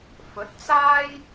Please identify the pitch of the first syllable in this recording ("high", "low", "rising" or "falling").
rising